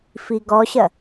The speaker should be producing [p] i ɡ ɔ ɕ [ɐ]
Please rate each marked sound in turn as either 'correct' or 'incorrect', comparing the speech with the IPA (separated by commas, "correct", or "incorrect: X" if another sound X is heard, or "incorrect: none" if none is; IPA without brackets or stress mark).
incorrect: f, correct